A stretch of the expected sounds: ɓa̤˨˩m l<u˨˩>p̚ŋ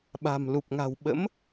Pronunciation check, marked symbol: correct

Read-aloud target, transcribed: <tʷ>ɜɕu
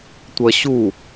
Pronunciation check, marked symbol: correct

